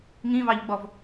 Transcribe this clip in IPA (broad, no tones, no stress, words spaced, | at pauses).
ŋĩvɑʎɡ͡bɔv